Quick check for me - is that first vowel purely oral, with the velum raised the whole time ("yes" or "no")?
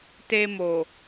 yes